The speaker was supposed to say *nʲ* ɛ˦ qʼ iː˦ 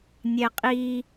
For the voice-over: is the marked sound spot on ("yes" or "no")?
yes